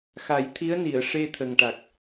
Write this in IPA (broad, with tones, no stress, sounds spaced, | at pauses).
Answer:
x a˨˩˦ j t̪ʰ i˧˥ ə̯ n i˨˩˨ ə̯ ʂ e˧ t̪ʰ ə˨˩ ŋ ʈ a˨˩ k̚